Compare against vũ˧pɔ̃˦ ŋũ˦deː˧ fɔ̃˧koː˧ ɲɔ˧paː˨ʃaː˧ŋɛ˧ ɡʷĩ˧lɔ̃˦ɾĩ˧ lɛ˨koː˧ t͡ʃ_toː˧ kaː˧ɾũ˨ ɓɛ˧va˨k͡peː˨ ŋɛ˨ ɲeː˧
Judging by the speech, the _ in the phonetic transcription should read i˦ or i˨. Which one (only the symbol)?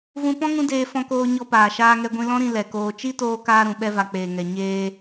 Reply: i˦